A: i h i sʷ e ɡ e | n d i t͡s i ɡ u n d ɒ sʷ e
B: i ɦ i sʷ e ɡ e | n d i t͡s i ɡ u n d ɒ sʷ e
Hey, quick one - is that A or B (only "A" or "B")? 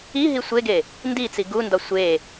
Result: B